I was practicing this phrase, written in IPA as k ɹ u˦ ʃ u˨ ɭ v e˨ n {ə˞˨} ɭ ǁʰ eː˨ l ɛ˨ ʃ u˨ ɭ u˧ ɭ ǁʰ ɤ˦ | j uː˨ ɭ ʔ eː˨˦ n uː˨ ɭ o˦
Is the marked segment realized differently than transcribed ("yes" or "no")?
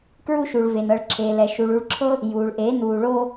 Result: yes